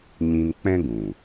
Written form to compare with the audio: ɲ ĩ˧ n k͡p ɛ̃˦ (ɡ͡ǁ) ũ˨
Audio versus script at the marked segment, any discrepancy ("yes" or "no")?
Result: yes